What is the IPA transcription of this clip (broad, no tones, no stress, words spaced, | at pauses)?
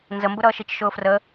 nzəmbʊɾʌː ʃit͡ʃʃʊːfrə